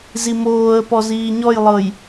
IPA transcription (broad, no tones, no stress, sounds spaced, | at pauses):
z i m oː ə̯ p ɔ z iː ɲ ɔ j lˠ ɤ j